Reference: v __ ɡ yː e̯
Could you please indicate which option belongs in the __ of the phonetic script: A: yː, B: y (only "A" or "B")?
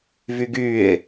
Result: B